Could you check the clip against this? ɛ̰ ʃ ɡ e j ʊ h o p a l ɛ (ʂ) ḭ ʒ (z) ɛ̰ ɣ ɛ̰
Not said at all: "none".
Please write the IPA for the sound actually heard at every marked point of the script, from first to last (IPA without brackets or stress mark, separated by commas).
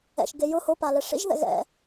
ʂ, ð